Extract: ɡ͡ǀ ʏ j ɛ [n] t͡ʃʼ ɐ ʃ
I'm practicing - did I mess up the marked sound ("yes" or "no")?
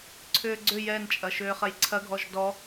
no